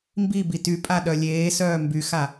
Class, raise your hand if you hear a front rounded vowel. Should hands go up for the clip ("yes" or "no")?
yes